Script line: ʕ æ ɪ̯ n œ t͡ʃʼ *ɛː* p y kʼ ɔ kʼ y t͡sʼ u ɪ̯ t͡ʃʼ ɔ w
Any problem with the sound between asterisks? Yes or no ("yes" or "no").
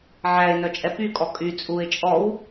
yes